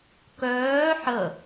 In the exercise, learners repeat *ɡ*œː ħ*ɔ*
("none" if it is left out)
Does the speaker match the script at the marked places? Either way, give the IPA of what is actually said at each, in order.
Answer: k, ə

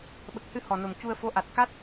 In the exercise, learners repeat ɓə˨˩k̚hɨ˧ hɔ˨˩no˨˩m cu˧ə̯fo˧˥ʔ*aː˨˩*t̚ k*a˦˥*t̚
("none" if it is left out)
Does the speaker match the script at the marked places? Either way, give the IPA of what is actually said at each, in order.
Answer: a˨˩, a˦˥

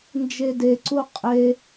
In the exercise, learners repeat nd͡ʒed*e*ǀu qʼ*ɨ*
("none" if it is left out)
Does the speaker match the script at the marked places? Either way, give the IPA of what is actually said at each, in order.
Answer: e, e

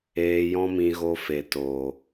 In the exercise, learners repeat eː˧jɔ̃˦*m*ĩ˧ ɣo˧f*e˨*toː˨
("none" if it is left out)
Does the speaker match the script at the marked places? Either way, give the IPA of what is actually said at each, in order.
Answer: m, e˨

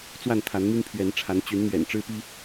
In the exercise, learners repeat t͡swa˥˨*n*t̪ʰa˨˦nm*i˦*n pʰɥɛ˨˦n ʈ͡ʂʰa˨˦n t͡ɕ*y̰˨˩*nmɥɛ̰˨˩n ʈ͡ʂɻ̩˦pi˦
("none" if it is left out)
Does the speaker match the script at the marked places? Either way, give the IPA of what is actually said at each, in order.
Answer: n, i˦, y˨˦

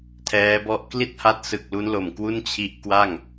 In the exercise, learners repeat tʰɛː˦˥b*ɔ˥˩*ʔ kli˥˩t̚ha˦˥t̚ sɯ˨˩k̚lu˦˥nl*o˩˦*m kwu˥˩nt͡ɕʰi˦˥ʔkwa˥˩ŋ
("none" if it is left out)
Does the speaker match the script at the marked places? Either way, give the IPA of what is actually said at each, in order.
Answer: ɔ˥˩, o˨˩

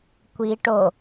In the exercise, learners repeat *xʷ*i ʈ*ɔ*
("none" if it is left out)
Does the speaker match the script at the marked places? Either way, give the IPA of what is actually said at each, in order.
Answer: kʷ, o

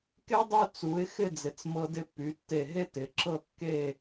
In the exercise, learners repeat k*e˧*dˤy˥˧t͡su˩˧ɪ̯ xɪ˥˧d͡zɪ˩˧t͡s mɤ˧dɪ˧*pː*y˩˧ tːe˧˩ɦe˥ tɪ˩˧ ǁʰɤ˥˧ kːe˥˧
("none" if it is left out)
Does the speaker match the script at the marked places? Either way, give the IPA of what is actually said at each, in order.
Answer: e˥, pː

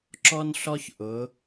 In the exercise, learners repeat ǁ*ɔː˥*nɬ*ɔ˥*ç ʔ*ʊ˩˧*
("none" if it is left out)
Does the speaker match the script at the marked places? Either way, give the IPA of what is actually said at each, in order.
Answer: ɔ˥, ɔ˥, ʊ˩˧

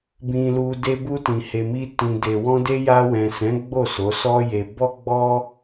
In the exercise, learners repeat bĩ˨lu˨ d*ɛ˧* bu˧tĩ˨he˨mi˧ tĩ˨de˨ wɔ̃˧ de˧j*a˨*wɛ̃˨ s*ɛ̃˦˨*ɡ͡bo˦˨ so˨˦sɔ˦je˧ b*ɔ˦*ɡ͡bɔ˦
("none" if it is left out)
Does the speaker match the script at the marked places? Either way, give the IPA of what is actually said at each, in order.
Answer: e˧, a˧, ɛ̃˨˦, ɔ˦

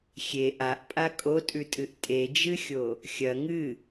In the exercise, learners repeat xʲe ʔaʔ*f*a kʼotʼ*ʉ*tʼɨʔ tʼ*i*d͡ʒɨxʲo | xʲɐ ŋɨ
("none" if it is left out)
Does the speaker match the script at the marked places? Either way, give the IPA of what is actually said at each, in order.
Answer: pʼ, ʉ, e

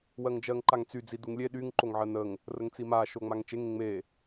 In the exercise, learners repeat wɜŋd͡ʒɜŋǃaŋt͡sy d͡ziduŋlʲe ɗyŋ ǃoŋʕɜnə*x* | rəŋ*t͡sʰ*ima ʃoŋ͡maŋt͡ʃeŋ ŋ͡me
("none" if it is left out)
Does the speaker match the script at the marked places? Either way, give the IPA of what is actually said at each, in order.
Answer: ŋ, t͡s

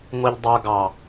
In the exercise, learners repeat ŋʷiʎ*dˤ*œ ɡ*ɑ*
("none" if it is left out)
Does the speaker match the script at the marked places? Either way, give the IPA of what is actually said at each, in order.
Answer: dˤ, ɑ

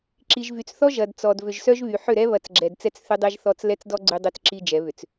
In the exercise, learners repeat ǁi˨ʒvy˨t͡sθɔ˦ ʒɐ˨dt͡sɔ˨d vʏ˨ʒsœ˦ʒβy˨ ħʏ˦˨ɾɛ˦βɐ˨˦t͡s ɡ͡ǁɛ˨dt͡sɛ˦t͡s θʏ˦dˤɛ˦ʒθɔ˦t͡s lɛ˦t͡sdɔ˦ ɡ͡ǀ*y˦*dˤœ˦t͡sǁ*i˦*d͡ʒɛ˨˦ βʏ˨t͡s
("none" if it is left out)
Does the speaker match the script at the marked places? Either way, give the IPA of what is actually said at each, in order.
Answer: y˦, i˦

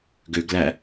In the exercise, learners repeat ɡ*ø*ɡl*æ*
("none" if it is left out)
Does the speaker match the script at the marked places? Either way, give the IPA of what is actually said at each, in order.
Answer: ø, æ

